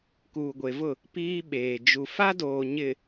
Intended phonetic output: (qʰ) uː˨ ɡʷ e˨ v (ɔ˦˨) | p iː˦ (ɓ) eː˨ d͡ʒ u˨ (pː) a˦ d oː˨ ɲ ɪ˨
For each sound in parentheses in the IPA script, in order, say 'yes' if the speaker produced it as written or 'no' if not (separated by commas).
no, no, yes, no